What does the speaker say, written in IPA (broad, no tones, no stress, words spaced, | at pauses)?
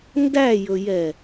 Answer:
ndæjɵjɛ